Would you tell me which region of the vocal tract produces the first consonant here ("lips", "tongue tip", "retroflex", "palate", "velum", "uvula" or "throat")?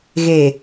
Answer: velum